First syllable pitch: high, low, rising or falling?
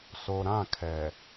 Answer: low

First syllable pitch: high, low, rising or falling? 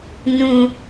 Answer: low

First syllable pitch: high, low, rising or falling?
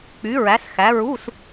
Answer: rising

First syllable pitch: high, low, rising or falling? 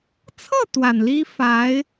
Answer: falling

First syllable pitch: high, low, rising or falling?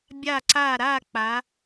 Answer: falling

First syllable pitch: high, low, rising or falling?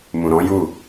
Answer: low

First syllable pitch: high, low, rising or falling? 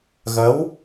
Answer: rising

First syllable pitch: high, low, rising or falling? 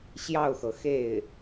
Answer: falling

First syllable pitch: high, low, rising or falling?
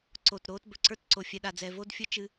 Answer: low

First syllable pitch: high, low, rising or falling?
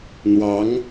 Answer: rising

